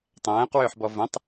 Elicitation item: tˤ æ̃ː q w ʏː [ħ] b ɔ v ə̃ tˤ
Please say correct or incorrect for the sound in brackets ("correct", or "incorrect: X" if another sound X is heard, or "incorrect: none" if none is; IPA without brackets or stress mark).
correct